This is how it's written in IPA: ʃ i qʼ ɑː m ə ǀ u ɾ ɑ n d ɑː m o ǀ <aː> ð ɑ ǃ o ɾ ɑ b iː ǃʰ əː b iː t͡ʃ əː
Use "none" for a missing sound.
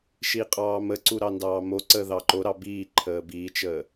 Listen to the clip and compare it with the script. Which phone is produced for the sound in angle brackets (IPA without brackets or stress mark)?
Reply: əː